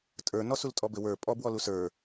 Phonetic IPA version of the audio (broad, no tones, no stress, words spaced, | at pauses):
tʼə˞ nɔsultʼɔbɘ wə˞ pʼɔbwɔlu sə˞